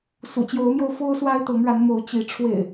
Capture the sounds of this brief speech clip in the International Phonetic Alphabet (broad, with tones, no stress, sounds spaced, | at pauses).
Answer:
s ṵ˨˩ t͡ɕ j o˨˦ ʊ̯ m j o˧ ʊ̯ f o˦ ʊ̯ s w a˦ ɪ̯ t̪ ɤ˨˦ ŋ ɻ a˨˦ n m o˨˦ ʊ̯ t͡ɕ i˨˦ ʈ͡ʂʰ w ḛ˨˩ ɪ̯